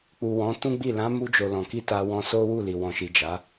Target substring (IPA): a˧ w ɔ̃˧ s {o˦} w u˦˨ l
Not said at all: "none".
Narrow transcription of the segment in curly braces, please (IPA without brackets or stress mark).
o˦